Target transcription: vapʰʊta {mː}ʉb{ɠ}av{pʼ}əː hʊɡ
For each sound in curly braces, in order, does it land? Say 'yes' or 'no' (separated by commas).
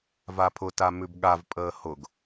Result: no, yes, yes